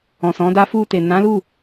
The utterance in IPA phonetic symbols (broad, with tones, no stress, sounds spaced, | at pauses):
ɔ̃˨ s ɔ̃˨˦ d a˦ f u˧ t e˨ n ã˨˦ l u˦˨